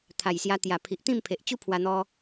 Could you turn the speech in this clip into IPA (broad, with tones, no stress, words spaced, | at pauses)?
t̪ʰa˨˩jsja˧t̪ja˨˩pʰi˨ʔ t̪ĩ˥˧mpʰe˨ʔ t͡ɕu˦pʰwa˧n̪ɔ˧